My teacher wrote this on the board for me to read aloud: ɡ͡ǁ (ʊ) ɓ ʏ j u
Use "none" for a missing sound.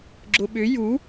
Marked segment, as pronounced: ʊ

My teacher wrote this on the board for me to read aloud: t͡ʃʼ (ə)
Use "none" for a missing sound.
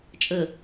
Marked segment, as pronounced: ə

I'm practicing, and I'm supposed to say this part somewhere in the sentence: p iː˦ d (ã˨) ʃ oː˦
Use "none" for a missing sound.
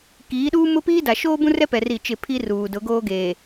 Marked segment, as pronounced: a˨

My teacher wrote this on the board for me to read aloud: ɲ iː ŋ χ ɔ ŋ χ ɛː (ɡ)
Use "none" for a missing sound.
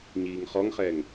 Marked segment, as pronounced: ŋ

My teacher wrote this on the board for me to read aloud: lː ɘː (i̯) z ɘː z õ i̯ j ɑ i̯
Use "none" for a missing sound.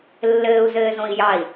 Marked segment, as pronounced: u̯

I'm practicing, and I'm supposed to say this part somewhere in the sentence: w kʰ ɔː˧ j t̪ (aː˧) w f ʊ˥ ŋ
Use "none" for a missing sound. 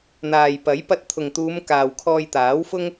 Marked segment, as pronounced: aː˨˥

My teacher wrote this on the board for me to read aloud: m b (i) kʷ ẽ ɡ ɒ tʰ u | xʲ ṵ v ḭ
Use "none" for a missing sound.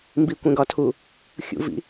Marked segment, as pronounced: i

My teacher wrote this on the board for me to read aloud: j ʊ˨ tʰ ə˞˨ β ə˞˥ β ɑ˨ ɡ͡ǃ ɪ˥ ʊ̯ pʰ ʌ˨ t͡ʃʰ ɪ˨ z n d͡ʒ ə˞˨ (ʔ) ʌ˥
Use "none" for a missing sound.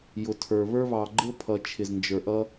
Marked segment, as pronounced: ʔ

